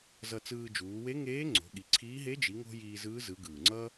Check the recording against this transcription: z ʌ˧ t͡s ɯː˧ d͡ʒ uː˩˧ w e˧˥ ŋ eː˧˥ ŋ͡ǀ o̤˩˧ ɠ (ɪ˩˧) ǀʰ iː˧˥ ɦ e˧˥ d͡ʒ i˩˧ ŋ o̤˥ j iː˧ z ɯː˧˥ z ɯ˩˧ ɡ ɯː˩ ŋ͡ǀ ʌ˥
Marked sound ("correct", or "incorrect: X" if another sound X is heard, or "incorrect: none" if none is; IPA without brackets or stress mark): incorrect: i˩˧